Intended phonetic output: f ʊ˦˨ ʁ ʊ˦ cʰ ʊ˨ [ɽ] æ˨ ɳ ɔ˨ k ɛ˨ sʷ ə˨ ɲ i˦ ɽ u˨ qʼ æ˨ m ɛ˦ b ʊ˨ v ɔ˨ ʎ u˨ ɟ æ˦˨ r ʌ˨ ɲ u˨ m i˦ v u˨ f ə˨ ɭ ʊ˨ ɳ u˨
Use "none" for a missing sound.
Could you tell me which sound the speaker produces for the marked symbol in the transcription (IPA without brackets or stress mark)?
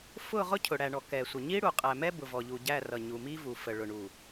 ɽ